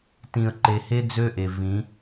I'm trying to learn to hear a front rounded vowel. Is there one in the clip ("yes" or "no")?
yes